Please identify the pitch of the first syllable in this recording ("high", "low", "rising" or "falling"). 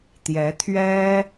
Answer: rising